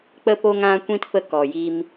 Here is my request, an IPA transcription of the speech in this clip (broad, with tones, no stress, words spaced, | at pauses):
k͡pə˧po˧ŋã˧kʷĩ˧t fə˧kɔ˨ji˧m